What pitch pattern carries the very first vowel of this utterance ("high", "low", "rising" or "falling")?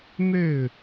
falling